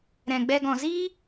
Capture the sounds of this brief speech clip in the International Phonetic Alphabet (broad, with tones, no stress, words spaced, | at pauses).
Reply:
ɾɛ̃˨ɡ͡bɛ˧ ɡɔ̃˨ziː˦